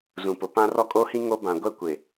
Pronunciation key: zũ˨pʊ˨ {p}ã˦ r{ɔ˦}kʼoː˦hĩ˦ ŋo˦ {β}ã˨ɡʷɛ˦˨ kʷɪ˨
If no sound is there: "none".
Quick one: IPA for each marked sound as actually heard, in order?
p, ɔ˦, b

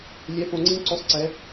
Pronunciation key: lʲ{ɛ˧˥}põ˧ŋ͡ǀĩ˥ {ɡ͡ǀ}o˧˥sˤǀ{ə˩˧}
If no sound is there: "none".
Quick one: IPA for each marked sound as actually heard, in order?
ɛ˧˥, ǀ, ɛ˩˧

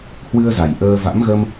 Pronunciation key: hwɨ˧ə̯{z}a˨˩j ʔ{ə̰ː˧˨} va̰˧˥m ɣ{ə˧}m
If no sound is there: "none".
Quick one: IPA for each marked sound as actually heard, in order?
z, əː˧, ə˧

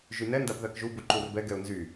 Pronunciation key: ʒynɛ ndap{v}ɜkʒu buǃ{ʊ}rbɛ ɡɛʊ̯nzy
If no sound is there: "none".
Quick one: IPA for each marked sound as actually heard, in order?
ð, u

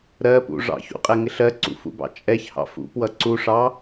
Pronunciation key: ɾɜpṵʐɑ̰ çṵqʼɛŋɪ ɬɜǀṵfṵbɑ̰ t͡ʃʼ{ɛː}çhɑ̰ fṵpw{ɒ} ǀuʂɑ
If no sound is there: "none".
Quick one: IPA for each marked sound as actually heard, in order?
ɛ, ʌ

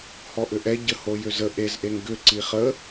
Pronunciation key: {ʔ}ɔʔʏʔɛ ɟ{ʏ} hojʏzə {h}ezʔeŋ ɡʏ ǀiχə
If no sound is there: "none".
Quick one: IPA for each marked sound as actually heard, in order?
h, ə, ʔ

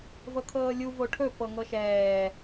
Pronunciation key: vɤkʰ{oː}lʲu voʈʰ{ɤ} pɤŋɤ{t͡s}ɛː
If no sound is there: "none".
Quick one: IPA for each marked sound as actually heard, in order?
ɤː, ɵ, ʃ

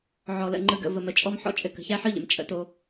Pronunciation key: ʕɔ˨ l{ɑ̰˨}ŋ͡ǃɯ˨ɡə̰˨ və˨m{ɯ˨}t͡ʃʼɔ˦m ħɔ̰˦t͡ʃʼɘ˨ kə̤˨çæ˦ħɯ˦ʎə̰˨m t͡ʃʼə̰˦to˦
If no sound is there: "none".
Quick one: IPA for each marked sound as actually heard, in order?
ə̰˨, ə˨

